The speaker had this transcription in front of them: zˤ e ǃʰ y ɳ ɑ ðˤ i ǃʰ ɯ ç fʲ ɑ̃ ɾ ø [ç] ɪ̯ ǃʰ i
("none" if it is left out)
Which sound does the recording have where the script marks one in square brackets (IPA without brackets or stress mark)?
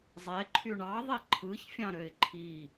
none